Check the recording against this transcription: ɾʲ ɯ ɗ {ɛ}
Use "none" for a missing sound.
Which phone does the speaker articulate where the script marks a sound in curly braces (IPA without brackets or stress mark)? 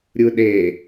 e